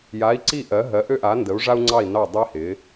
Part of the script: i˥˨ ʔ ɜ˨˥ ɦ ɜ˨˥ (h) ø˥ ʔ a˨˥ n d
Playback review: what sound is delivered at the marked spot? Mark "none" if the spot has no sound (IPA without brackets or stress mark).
ʔ